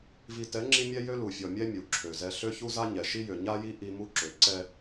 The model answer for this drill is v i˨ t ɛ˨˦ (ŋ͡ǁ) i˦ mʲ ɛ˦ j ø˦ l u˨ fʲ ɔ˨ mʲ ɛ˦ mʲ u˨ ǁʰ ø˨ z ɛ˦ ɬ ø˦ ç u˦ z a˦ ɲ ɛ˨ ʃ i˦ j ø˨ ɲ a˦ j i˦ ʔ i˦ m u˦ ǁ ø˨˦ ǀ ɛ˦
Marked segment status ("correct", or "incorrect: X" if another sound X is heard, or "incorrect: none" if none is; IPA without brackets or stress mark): correct